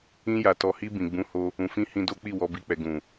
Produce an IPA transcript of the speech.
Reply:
ĩ˧ja˨tɔ˨hi˧ bĩ˨ɡ͡bũ˨˦ho˧ | ũ˨fĩ˧ hĩ˧do˦k͡pi˦˨ wɔ˧bi˧k͡pɛ˨ ɡũ˨

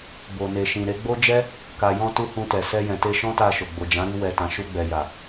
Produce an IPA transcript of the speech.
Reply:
bo˨ne˨ʃĩ˨ɾe˨˦ ɡ͡bo˦d͡ʒɛ˦ | ka˨jɔ̃˧tu˧ hũ˧tɛ˨ sɛ˧jɛ̃˨te˧ ʃɔ̃˦ta˧ʃo˨ ɡ͡bo˨d͡ʒã˨˦ɾi˧ wɛ˨tã˨ ʃu˧ɡ͡bɛ˨ja˨

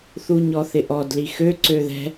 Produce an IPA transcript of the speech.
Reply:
θuɲɔθɪʔɔd lixø ǀøðɛ̤

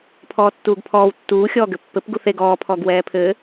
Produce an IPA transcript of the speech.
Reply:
pʰɔːtːuːɡpʰɔːw tːuː xʲɔːɡɘpːɘp ɡuθeɡ ɔː pʰɔɡwɛːpʰɘ

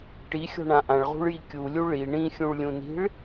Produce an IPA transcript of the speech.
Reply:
ʈixʲɔ̤ɳã ʔãɭʁṳɭji kʲulʲu ɭi ɳĩxʲũɭlʲũni̤ɭ

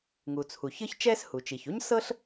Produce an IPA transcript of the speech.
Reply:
ŋu˩t͡sʰu˩ çɯ˥çt͡ʃɛ˥shu˩t͡ʃi˩ç u˥ɲsɤ˥ɬ

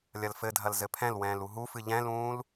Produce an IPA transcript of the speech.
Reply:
lʲɐlfɘdʱɐl zɘpʰɛ̃lwɛ̃ːl uɦufɨ ʎɛ̃lũːl

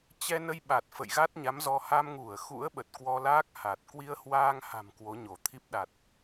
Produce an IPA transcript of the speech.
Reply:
t͡ɕɛ˧nə˧jɓa˨˩t̚ fə̰˧˨jɣa˦˥t̚ɲa˨˦mzɔ˧ ha˧mŋu˧˩ə̯ xṵ˧˥ə̯ɓə˨˩t̚ kwɔ˧laː˦˥k̚ ha˨˩t̚ kwi˧ə̯hwaː˧ŋha̤˨˩m kwo˨˦ɲo˧˩t̪ʰi˦˥p̚ɗa˨˩t̚

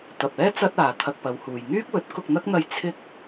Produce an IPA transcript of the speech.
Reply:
t̪ɐ˨p̚ɛː˥ t͡sɐ˥t̚aː˨ t̪ʰɐ˧k̚pɐ˨˧whuː˨j ŋyː˥k̚wɵ˨˥t̚ kʊ˧k̚n̪ɐ˥k̚n̪ɐ˧j t͡sʰɪ˥k̚

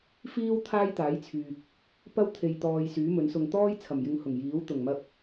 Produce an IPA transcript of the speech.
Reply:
fiː˥w t̪ʰaː˥jt̪aː˨˥jt͡sʰyː˨k̚ | pɐ˥w t̪ʰe˧jt̪ɔː˧j syː˨˥mɵ˨˥nsʊ˧ŋ t̪ɔː˥jt͡sʰɐ˨˩mjɪ˨˧ŋ hʊ˨˩ŋjiː˨˥wt̪ʊ˨˩ŋmɐ˧k̚

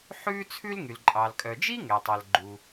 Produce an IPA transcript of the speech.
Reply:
ħʉː˥t͡sʰʉ˥lŋy˩l ǃʼɑ˩lkʼœ˩d͡ʒi˥ ŋɛ˩tˤɛ˩l ɡ͡ǃu˩

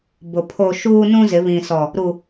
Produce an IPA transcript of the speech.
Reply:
bʊ˨ pʰo˦ ʃuː˦ nũ˦zɪ˨˦ βĩ˨sɔ˨ | ɾu˨

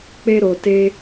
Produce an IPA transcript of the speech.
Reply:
k͡pe˧ɾo˨ te˧

